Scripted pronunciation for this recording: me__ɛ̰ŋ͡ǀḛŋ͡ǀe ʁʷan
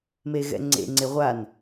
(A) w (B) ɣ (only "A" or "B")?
B